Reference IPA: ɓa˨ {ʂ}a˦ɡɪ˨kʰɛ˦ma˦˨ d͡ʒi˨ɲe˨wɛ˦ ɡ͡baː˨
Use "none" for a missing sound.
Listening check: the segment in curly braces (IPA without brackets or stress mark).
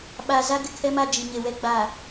z